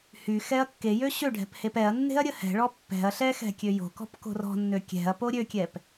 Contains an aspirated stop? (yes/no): no